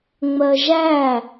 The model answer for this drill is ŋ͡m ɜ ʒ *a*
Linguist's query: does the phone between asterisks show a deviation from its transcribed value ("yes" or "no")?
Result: yes